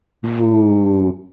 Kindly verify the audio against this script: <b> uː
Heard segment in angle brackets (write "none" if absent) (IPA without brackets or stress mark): v